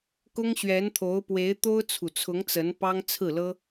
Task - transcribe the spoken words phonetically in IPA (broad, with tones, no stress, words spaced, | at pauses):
kʊ˥ŋɕɥɛ˧˥nt̪ʰo˧˥ʊ̯pwe˧˥ɪ̯ t̪o˥ʊ̯t͡sʰu˨˩t͡sʰʊ˧˥ŋ t͡sə˧˥n pɑ˥ŋt͡sʰɹ̩˥˩lɤ˥